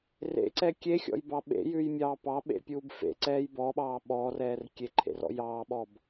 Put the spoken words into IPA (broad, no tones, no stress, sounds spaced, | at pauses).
r ḛ ǀ ɛ kʲ e xʲ ɔ̰ j b ɑ ɓ ḛ j ʉ j mʲ ɑː p ɑ ɓ ḛ pʲ uː b f ḛ ǀ ɛː j b ɔ ɓ ɑː ɓ ɔː r ɛː r kʲ e ǃʰ ḛ r ɔ̰ j ɑː ɓ ɔ b